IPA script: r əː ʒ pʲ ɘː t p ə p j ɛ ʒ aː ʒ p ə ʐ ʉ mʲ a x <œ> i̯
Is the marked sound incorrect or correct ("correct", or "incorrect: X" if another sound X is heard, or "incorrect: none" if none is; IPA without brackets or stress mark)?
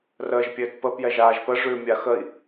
incorrect: ə